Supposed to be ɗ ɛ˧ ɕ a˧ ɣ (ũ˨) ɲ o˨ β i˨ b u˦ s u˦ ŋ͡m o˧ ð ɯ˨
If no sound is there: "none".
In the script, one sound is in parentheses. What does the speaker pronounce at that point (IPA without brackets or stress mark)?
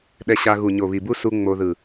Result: u˨